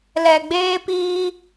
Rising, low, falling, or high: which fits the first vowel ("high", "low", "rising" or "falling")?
low